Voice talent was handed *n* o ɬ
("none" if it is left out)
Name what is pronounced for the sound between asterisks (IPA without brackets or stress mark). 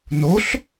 n